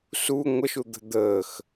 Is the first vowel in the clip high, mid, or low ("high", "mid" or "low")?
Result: high